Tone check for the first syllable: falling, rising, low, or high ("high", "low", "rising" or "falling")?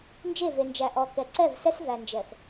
falling